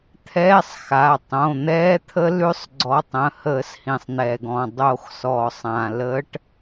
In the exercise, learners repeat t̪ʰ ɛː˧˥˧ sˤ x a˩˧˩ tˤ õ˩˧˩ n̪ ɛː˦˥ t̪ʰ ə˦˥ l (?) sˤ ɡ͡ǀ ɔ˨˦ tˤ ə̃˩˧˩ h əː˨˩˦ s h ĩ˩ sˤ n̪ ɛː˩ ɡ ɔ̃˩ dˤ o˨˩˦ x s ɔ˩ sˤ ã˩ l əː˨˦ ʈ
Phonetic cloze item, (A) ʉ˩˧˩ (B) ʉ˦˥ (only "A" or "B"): B